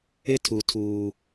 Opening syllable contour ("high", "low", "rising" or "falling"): high